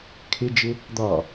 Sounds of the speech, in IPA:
kʰ ɪ d͡ʒ ɪ | d̪ ɒ

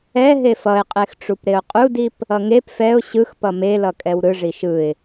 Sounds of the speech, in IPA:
ɛ ɦ e f ʌ ɪ̯ qʼ e x ʈ͡ʂ u p ɾ e ʊ̯ qʼ u d i p | ʌ ŋ e p f ɛ ʊ̯ ɕ ɯ x p ʌ m e l ʌ kʼ ɛ w ɾ ɯ ʐ i ʃ ɯ ɪ̯

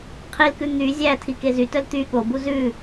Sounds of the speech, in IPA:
qʰ i l k ʉ n̪ y zʲ æ tʰ i k e z y t œ l t̪ y ɠ o b u z ʉ

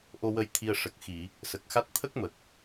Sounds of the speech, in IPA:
ʔ o˧ w ə˧ j t̪ʰ i˧ ə̯ ʂ ə˨˩ k̚ x i˨˩˨ | s ə˨˩ k̚ x a˦˥ t̚ t̪ʰ ə˦˥ k̚ m ə˨˩ k̚

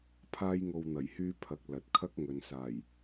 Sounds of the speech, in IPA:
pʰ aː˧ j ŋ o˨ w n̪ ɐ˨˩ j h yː˧ pʰ ɐ˨ k̚ l ɐ˨˥ t̚ kʰ ɐ˥ k̚ ŋ ɵ˨˧ n s aː˨˩ j

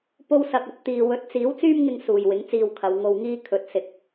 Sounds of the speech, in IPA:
p o˧ w s ɐ˨ k̚ ɐ˨ p̚ t̪ iː˨ w ɵ˨˥ t̚ t͡s iː˨˥ w t͡s yː˥ m ŋ ɪ˧ ŋ s uː˨ j w ɪ˨˥ ŋ t͡s iː˧ w kʰ ɐ˨˧ w ŋ o˧ w ŋ iː˥ kʰ ɵ˨˥ t̚ s ɪ˨ k̚

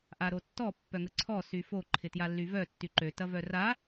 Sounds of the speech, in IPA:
ʔ a ɾ o tː ɔ pː œ ŋ ə ǀʰ ɔ s y f o ǃʰ ɪ t j a lː y v œ tː y ǃ ø t ɐ v œ r a

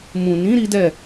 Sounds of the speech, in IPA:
m ũ˨ n ĩ˨˦ ɾ i˦ d ɛ˦˨

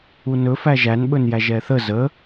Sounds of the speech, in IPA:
u n ɵ f æ ʒ æ n ɓ ɵ n j æ ʒ ɛ θ ə z ə

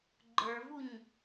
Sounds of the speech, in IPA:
ɡ͡ǃ ə˞ v u ɲ

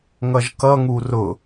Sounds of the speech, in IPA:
ŋ ʌ ʒ k ʌ ŋ u r ʊ

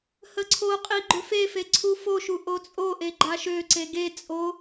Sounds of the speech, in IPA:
h ə ǀʰ o qʼ i ɡ͡ǃ ø f e f e ǀʰ u f o ʃ u ʔ o t͡sʼ o ʔ e ɡ͡ǃ a ʃ ø ǀ e ɡ e t͡sʼ o

